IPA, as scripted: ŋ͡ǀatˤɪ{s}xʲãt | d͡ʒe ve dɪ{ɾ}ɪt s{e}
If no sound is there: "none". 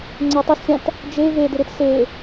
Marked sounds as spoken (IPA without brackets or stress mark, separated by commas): s, ɾ, e